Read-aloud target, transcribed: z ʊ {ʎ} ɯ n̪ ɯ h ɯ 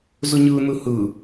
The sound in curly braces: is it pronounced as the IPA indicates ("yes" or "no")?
no